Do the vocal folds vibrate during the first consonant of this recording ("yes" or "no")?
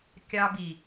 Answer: no